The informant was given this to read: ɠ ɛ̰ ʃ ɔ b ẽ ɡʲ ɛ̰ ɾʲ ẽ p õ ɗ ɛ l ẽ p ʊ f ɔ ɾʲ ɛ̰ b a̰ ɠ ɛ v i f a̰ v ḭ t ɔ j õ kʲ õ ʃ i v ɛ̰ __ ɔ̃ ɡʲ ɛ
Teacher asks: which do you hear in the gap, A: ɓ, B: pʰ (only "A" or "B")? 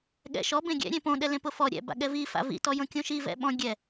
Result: A